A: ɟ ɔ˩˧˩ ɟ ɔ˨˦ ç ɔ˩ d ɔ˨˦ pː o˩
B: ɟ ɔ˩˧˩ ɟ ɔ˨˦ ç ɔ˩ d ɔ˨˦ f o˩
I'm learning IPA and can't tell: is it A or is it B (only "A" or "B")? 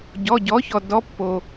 A